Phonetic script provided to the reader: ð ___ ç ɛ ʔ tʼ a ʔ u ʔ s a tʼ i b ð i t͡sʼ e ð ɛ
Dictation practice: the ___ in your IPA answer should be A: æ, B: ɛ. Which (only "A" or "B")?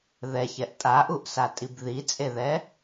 B